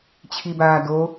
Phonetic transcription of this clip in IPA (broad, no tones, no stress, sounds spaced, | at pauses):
t͡ɕʰ i b aː d o